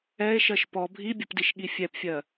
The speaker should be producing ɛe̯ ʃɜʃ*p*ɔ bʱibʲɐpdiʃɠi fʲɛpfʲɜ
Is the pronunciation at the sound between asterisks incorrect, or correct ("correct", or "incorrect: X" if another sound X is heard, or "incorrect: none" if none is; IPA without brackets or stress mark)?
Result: correct